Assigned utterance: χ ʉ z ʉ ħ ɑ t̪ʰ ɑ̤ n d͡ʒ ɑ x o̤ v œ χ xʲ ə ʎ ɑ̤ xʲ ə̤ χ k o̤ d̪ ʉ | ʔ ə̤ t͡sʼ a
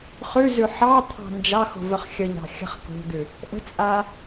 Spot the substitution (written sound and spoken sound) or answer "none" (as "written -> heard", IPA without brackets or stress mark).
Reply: none